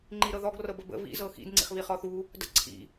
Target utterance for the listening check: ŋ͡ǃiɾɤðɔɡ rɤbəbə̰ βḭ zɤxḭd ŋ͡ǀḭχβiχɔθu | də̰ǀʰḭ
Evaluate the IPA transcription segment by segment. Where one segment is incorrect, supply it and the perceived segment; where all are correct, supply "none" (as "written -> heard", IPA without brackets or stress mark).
none